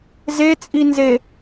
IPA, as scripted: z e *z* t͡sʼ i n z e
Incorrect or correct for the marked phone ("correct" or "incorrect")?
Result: incorrect